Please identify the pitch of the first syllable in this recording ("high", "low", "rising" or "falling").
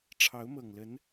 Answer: rising